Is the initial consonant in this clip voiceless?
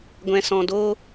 no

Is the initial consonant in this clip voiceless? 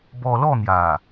no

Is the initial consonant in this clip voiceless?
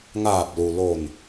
no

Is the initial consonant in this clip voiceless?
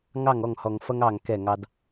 no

